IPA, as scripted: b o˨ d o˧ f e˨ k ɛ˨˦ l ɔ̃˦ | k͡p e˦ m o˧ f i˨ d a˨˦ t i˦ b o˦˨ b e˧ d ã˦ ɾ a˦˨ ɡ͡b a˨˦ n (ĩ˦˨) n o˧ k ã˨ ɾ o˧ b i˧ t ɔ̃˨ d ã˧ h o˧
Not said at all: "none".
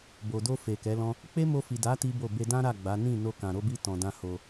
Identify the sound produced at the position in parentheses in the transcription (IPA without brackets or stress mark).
ĩ˦˨